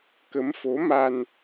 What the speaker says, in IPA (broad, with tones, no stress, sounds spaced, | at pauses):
k ə˨˦ m f o˨˦ m a˧ n